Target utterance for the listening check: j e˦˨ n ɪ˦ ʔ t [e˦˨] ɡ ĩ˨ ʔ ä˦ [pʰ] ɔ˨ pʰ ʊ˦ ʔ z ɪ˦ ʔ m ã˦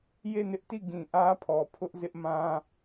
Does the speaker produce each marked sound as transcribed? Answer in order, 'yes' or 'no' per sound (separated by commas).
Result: no, yes